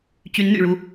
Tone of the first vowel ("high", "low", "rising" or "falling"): rising